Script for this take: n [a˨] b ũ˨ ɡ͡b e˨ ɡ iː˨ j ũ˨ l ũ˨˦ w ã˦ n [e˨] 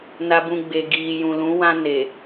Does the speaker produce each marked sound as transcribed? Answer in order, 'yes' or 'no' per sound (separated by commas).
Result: yes, yes